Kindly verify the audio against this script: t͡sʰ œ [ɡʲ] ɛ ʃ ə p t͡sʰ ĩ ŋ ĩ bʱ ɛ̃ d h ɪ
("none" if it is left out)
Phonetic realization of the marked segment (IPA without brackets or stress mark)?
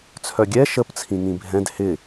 ɡʲ